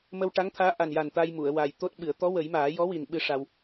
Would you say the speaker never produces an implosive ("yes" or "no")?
no